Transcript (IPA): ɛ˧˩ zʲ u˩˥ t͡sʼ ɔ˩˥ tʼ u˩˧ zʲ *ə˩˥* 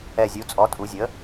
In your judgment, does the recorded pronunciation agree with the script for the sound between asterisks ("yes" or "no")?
yes